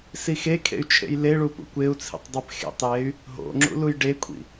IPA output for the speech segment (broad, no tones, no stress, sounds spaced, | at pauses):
s i x e kʰ ḛ y̯ t͡ʃʰ ḛ j l e ɭ u p ṵ kʷ e u̯ t͡sʰ ḭ tˤ dˤ e p x ḛ tˤ j e y̯ | ɦ o̰ ŋ͡ǁ ṵ l u j ɖ e kʷʰ ḭ